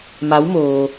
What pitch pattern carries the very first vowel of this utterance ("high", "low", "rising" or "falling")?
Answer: rising